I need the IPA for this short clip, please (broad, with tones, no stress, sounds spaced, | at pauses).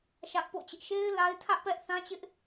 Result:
ʃ ä˦ ʔ p o̰˦˨ t͡ɕ ɪ˦ ʔ ʃ e˦ ɪ̯ l a˦ ɪ̯ tʰ ä˦ ʔ p ɛ˦ ʔ θ ã˦ t͡ɕ ɪ˦ ʔ